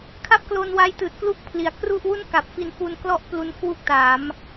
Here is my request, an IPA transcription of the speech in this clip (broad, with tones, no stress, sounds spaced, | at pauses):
kʰ a˥˩ p̚ k l o˧ n w a˧ j t ɯː˨˩ t̚ k l u˥˩ k̚ pʰ l i˩˦ a̯ k r u˥˩ ʔ w u˥˩ n k a˨˩ p̚ f i˧ n f u˧ n k l ɔ˥˩ ʔ p l u˧ n kʰ w u˥˩ k̚ t aː˩˦ m